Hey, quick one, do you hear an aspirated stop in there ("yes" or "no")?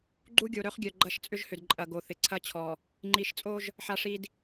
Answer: yes